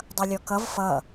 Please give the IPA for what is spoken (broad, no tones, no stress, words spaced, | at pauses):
dˤʌlʲɔkʌv fʌ